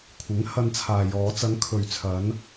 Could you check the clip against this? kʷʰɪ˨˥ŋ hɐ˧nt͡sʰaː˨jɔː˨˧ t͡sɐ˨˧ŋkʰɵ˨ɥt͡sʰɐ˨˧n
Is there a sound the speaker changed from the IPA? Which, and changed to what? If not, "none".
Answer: none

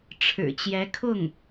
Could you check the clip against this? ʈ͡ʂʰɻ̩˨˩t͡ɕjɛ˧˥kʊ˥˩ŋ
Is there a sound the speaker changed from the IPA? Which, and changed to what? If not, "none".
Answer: k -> kʰ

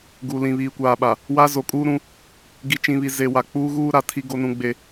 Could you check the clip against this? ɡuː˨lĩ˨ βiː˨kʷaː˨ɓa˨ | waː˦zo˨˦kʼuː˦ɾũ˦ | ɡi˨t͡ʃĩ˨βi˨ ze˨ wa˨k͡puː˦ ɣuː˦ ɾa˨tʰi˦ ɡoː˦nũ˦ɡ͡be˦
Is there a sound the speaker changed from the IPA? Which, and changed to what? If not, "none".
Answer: oː˦ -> o˦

